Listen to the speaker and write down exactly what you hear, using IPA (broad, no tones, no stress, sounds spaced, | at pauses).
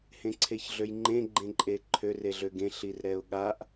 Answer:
h ẽ ǀʰ e ç ɮ ø j ŋ͡ǃ ẽ ɡ͡ǃ ẽ ǃʼ e ǃʰ ø r e ɮ ø ɡ ẽ ɬ i r ɾ ɛ ʊ̯ ɠ a ʔ